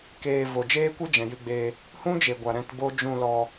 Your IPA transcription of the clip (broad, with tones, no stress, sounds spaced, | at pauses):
k eː˧ v o˨ d͡ʒ eː˦ kʷ ɨ˦ d͡ʒ ɛ̃˨ j ɨ˧ ɡ͡b e˧ | h ũ˦ d͡ʒ e˨ ɡʷ a˨ ɾ ɛ̃˧ t b o˦ d͡ʒ ũ˦˨ l ɔ˧